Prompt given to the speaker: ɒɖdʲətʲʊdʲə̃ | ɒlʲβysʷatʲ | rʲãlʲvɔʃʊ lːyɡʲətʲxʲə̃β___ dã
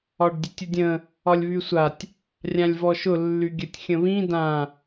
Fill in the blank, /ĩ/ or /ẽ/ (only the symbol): ĩ